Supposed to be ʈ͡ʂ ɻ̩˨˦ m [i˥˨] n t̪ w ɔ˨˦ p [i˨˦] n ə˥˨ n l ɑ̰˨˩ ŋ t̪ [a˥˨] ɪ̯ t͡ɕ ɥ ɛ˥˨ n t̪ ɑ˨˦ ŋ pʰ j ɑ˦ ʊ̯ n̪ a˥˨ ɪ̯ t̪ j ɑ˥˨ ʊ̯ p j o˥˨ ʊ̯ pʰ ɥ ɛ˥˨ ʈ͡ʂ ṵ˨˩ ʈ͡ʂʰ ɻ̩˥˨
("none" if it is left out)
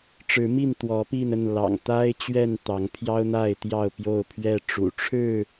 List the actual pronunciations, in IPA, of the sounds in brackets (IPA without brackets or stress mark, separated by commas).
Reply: i˥˨, i˥˨, a˦